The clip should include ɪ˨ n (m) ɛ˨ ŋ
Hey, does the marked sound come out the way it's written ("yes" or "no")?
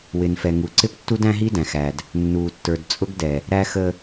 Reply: no